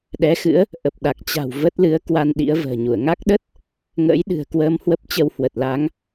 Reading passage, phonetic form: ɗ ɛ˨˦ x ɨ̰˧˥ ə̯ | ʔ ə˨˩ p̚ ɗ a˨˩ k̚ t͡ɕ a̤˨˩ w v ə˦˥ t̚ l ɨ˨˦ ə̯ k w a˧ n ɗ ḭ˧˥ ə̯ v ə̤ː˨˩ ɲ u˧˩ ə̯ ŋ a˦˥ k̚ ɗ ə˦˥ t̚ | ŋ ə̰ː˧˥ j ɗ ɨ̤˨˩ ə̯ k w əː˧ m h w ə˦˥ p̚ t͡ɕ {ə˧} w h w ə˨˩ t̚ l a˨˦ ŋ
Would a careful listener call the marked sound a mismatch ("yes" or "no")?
no